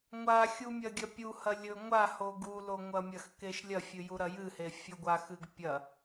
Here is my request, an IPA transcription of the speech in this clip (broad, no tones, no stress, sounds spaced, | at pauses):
ŋʷ a xʲ u mʲ ɐ ɡʲ ɐ pʲ u h ɐ lʲ ɵ ŋʷ a h o ɡ u l o ŋʷ ɐ mʲ ɐ x k e ʃ lʲ ɐ fʲ ɨ j u ɾ ɐ j ɨ h e fʲ ɨ ɡʷ a x ɨ ɡ pʲ ɐ